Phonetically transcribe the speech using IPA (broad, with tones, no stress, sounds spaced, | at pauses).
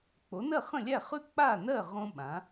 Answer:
k͡p o˩˥ n ɜ˥˩ χ ə̃˥˩ lʲ æ˥˩ χ ʉ˥ k͡p a˥˩ n ɜ˥˩ ʁ õ˥ ɓ ã˩˥